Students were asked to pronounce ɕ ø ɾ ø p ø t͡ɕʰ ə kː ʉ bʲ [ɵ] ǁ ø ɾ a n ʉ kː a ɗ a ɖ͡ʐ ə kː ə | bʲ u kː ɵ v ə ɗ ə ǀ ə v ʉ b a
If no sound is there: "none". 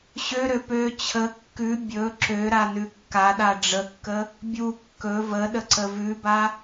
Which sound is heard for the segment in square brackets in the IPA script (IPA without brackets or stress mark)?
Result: ɵ